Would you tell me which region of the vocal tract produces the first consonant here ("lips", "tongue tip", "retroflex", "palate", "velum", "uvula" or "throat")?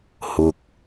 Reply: throat